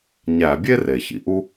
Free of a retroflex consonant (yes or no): yes